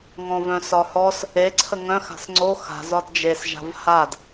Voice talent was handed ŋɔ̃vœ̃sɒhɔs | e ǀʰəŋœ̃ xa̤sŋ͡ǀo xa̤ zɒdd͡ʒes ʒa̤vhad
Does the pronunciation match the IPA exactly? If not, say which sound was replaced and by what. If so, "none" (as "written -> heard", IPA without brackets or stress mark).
none